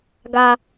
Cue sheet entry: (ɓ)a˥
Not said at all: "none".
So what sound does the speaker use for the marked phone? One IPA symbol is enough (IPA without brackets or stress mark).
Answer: ɡ